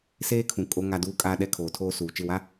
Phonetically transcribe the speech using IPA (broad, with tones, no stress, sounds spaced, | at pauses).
s eː˦ kʰ ũ˨ kʼ o˨ ŋ a˨ d uː˨ kʼ aː˨ ɗ ɛ˨ kʰ oː˨ tʰ oː˦ s uː˨ t͡ʃ ɪ˦˨ w a˦